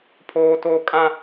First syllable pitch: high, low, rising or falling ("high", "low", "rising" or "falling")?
high